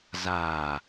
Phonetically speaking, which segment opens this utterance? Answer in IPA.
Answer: z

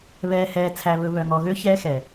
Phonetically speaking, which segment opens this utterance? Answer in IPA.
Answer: β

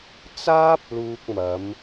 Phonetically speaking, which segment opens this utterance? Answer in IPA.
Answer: t͡s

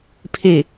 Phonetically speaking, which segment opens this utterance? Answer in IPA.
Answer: pʰ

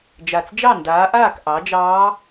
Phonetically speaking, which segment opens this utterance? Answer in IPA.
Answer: d͡ʒ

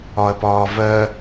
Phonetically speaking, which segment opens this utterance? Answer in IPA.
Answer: ɒ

